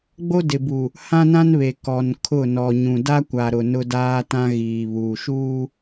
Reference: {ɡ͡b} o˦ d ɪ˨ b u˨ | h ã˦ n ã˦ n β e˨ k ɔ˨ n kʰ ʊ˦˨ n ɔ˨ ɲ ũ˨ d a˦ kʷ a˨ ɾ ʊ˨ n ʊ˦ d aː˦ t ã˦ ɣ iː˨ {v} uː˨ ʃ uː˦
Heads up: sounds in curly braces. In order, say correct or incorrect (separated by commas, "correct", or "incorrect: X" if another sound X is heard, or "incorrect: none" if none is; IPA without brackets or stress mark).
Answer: correct, incorrect: β